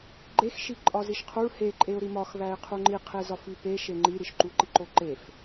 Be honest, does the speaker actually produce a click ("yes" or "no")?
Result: yes